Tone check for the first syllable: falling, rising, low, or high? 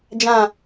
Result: low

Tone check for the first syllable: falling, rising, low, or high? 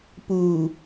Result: low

